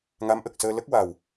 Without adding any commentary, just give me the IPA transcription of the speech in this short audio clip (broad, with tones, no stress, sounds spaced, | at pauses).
ŋ a˧˥ m ʔ ə˨˩ k̚ s əː˧ l ə˦˥ k̚ w a˨˩ w